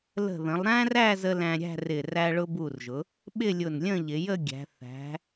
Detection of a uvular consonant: absent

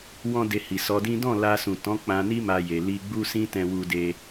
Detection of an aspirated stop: absent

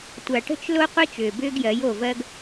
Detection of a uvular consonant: present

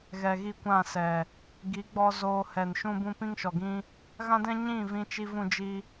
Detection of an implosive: absent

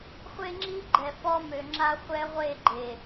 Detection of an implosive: absent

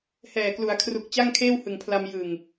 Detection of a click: absent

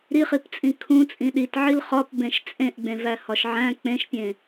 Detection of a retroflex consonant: absent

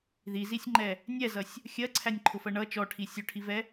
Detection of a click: present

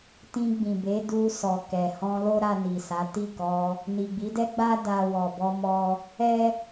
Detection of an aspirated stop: absent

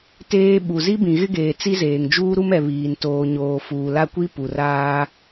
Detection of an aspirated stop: absent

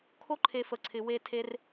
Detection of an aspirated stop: present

